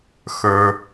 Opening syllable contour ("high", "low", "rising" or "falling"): low